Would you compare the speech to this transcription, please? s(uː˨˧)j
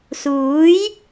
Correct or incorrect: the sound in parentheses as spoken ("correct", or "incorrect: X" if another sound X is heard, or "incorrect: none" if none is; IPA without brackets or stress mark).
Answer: incorrect: uː˨˥